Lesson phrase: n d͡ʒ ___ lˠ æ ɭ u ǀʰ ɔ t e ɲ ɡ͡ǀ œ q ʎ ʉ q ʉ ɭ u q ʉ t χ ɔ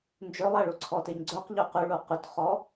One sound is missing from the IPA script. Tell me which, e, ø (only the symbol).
ø